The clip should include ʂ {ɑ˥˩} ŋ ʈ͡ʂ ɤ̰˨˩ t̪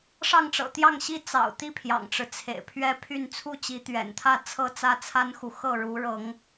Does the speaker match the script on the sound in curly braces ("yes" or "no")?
yes